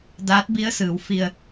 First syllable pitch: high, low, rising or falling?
rising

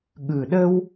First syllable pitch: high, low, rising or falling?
low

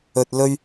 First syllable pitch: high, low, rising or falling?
low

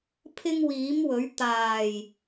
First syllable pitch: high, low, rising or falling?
high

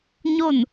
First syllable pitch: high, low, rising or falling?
falling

